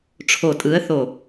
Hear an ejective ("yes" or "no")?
yes